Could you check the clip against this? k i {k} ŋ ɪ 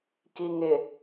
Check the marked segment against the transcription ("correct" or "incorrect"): incorrect